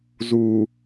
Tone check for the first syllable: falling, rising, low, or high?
low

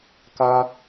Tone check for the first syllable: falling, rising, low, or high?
high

